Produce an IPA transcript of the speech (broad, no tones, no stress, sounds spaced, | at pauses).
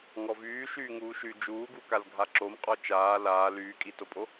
ŋ ɔ v yː ʃ yː ŋ uː ʃ y d͡ʒ uː ɡ u k a l ɡʱ a ǁ o m qʼ ɔ t͡ʃ aː l aː l yː kʼ i t o pʼ o